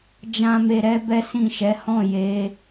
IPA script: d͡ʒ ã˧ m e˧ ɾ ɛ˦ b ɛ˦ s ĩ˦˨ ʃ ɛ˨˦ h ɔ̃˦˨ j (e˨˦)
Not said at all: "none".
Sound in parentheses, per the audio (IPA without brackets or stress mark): e˨˦